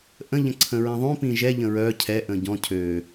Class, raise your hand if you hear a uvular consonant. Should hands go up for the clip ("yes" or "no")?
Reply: no